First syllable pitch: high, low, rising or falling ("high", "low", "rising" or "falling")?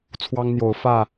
high